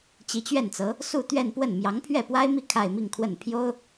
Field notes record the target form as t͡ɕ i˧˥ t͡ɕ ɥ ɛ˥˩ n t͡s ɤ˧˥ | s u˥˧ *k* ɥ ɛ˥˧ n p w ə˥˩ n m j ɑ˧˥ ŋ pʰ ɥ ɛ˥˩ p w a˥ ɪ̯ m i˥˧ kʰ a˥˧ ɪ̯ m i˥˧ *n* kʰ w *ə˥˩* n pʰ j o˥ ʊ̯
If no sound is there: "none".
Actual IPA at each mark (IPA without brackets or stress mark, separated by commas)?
t̪, ŋ, ə˥˩